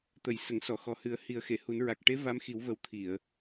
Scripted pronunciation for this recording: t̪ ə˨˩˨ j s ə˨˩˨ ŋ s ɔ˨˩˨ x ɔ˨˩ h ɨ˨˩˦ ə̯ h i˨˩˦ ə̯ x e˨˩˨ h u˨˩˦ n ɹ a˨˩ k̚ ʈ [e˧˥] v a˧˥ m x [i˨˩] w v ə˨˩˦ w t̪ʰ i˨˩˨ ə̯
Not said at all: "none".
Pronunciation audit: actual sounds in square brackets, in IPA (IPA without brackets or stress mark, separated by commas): e˧˥, i˨˩˦